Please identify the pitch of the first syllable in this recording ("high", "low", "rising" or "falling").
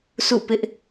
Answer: falling